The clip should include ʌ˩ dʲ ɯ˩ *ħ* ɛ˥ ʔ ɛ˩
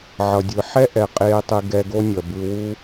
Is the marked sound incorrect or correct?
correct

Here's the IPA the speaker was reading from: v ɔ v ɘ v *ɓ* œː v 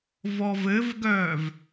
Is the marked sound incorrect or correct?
incorrect: ɡ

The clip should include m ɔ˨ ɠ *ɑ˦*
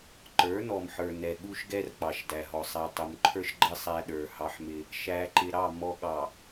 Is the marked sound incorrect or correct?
incorrect: ɑ˨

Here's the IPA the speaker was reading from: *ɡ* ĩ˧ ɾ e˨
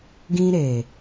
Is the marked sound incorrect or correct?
correct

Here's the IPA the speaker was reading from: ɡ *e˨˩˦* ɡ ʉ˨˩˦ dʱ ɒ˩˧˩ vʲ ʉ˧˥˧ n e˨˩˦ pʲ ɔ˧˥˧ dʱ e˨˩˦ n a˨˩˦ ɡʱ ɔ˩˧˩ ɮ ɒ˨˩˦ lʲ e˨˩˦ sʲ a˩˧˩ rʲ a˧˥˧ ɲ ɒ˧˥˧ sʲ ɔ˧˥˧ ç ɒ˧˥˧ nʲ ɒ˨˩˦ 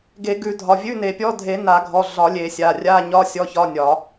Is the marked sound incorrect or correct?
correct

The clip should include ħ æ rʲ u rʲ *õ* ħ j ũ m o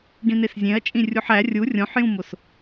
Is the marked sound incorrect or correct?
correct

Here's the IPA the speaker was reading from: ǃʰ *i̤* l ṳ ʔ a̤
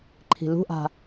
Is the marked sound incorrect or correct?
correct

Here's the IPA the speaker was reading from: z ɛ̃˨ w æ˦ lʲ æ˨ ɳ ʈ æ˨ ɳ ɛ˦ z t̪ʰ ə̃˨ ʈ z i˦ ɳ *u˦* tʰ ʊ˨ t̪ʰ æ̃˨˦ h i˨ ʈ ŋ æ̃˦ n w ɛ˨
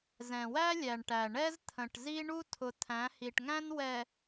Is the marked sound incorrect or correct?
correct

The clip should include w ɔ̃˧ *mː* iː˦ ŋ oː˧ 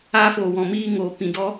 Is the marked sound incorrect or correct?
incorrect: m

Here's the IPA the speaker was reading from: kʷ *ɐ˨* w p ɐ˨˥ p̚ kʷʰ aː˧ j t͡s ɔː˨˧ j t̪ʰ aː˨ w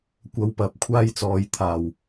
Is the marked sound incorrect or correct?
incorrect: ɐ˨˧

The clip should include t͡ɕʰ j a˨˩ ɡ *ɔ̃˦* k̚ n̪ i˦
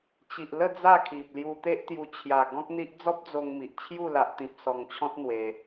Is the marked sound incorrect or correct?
correct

